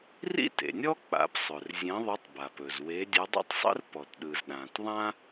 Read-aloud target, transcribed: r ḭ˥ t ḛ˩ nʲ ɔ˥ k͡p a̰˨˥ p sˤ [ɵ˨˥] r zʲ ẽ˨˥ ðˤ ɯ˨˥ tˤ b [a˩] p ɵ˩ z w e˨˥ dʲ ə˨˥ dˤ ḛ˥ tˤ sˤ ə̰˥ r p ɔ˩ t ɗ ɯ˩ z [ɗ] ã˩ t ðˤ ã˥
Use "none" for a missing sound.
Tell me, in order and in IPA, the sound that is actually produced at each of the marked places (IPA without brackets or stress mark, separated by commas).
ɵ˩, a˩, ɗ